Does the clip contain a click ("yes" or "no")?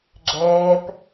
yes